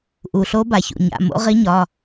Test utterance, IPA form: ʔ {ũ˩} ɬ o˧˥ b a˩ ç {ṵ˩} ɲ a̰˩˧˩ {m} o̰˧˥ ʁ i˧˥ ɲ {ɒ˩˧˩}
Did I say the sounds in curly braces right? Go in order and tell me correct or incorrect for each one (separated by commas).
incorrect, correct, correct, correct